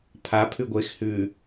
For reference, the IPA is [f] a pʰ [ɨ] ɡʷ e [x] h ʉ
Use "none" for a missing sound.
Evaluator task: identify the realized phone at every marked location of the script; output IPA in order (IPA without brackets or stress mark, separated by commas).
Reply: pʰ, ʉ, x